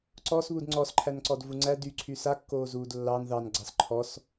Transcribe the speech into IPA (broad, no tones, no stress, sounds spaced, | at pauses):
ǀ ɔ s β u d ŋ͡ǀ ɔ s ǃʰ æ n ǀ ɔ d v u ŋ͡ǀ æ d y ǀʰ y s a kː oː z uː d lː ɑ n ð ɑ n ɡ͡ǀ ɑ s ǃʰ ɔ s